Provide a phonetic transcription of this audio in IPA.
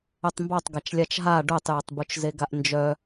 œtˤmbɑtˤ ɡat͡ʃlʲat͡ʃɦa ɖœtˤjɪtˤ but͡ʃzeɡaʔnd͡ʒœ

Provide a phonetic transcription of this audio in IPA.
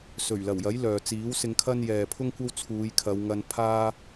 sɵ˨˩ɥlɐ˨˩wjɐ˨˥j lœː˨ t͡siː˨˥wsɪ˧ŋkʰɐ˥n jɛː˨pʰʊ˥ŋkʷɐ˥w t͡sʰuː˨˧jkʰɐ˨˧wŋɐ˧n pʰaː˥

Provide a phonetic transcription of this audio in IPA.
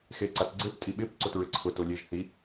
xeǀatɡ͡ǀep tʼiɓɪp ǀotɹɪǀʰʊ tolʲeʒ θi

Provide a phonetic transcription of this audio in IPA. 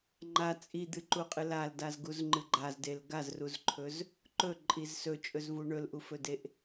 ŋ͡ǃa t͡sʼid̪ɨǃuqʼɨ laldazɡuzŋ͡ǃɨ ɡ͡ǃazdel ɡazruzǃʰɵz | ǃɵǃʼiz sɵt͡ʃʼɵzvu ɳɵlʔufɵdeʔ

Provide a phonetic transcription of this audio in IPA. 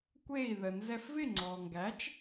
kʷe˥˩i̯ ðə˩nzɛ˧f vɪ˥˩ŋ͡ǀɔ˩ŋɡæ˩˥t͡ʃ

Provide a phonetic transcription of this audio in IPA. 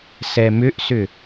sɛmʏʔsʏ

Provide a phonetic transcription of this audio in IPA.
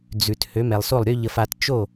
d͡zʉ˩t hø˩˥mɛ˩lˠso˥˩lˠɾʲø˥ ʎə˧fa˧t t͡ʃo˥˩

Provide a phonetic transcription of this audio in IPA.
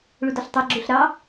ɭudɔɬtˤɑ ɡ͡ǁuɬɾɑ

